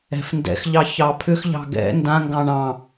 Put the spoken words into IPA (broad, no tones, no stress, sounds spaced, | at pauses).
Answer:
ɛ̤ f n d ɛ̰ x ʎ ɑ ç ɑ pʰ ʏ x ʎ ɑ̤ ɡ ɛ̰ n d ã ŋ ɡ ɑ̃ ɳ ɑ̃